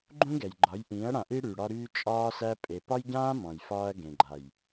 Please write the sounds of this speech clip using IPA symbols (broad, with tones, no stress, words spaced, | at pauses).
ɡ͡ǃũ˦ɡɛ˨jɡ͡ǃɒ˨˦jʔĩː˨˦ɐ̯ ɽã˨ʔi˦ ɽy˨ ɽɒ˦ɾyː˦ t͡ʃʼɒː˦sæ˦ pʼe˨pɒ˦jɟãː˦ mɔ̃˨jfɒː˦ɐ̯ɡẽ˨ɡ͡ǃa˨j